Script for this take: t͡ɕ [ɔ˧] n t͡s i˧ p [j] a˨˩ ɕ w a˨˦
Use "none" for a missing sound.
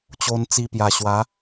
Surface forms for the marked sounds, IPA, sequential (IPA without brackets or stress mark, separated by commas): o˧, j